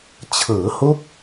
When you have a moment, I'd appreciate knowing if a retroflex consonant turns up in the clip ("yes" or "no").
no